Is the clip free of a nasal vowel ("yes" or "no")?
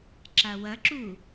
yes